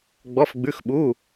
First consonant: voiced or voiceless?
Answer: voiced